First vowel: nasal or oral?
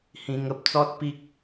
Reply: nasal